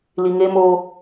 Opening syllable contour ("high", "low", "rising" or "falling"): low